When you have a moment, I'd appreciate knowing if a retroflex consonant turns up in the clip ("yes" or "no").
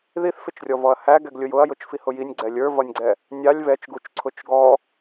no